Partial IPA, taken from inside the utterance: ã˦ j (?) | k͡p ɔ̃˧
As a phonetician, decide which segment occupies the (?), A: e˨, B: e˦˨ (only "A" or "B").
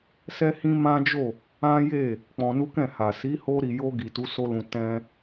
B